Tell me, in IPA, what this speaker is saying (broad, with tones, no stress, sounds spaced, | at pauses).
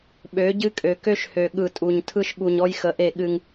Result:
ɓ ø˨˦ ɟ ɨ˦ kʼ ø˨ k ø˦ ʃ h ø˨ ɠ ɯ˨ tʼ u˨ ɲ tʰ ɯ˦ ʃ ɠ u˨ ɲ ɔ˦ j x ə˨˦ ʔ e˦˨ ɠ ɨ˦ ŋ